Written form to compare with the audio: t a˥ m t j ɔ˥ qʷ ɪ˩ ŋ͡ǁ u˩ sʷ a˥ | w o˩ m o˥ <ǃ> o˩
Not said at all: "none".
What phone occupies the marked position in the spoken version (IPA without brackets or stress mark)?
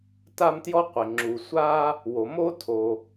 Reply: tʰ